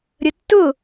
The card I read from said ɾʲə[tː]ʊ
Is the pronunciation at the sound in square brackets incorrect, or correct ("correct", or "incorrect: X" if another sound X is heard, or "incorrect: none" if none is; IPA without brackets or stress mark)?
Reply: correct